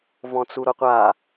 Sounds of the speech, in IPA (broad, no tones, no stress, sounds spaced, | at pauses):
v ɔ̃ t͡s u ɾ o qʷ a